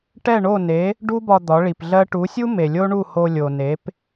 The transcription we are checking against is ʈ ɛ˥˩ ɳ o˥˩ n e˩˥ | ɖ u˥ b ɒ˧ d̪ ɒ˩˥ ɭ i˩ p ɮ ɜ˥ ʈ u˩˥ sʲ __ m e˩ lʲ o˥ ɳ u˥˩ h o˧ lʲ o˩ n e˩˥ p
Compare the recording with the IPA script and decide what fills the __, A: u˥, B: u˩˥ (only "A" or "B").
A